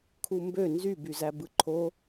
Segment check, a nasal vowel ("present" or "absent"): absent